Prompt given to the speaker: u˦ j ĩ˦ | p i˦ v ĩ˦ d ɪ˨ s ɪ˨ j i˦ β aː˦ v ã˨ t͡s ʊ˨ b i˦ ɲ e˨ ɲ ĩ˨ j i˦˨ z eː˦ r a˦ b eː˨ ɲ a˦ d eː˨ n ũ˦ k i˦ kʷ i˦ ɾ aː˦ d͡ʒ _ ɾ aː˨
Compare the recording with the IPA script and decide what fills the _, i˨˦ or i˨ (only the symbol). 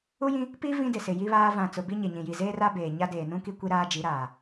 i˨˦